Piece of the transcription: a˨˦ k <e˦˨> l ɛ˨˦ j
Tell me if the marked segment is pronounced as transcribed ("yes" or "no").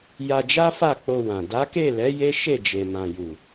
yes